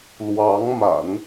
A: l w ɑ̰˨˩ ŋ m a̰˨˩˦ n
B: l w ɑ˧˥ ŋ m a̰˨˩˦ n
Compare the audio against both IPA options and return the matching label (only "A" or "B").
B